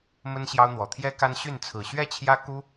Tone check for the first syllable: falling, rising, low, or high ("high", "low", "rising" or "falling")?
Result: high